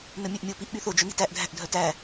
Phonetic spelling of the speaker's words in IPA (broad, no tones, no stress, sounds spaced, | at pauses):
n ɵ mʲ ʉ ʔ mʲ o p i ʔ ɓ y θ o d͡ʒ œ n i̤ t æ ʔ dʱ æ̤ ʔ dʱ œ t æ